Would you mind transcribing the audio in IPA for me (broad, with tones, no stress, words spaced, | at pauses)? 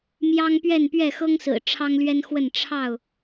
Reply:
mjɑ˦ŋpɥɛ˥˨npɥɛ˥˨ xɤ˦ŋsɹ̩˨˩ ʈ͡ʂʰɑ˦ŋlɥɛ˦nxwə˥˨n ʈ͡ʂʰɑ˥˨ʊ̯